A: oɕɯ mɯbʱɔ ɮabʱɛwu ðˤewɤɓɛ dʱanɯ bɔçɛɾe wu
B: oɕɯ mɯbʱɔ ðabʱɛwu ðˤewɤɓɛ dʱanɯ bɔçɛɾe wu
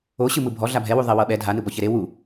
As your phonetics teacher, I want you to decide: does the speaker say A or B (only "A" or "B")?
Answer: A